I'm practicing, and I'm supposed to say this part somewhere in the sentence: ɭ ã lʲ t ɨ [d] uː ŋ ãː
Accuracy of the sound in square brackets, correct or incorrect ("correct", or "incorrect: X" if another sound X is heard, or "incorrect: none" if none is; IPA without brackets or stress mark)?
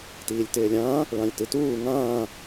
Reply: incorrect: t